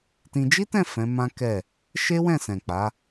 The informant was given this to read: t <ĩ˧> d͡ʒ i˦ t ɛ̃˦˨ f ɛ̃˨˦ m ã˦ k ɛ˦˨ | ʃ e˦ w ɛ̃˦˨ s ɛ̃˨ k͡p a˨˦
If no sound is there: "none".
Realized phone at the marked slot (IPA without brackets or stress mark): ĩ˧